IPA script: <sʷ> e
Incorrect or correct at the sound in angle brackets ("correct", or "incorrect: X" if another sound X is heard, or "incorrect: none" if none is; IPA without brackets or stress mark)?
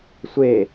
correct